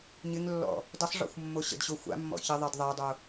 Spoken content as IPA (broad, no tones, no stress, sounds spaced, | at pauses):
ɲ ɪ ŋ lː ɔ̰ | d ə sˤ ʐ ɔ̰ xʷ mː o ɕ ə̰ d ɕ o xʷ a̰ mː ɔ̰ ç ɪ ðˤ e d ðˤ a dˤ o